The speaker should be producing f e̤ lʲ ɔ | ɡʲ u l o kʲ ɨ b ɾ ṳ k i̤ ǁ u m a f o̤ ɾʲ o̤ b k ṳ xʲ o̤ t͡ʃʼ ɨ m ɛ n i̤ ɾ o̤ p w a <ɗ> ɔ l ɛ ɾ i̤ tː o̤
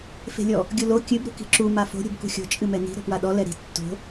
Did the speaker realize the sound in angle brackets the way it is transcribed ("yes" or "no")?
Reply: yes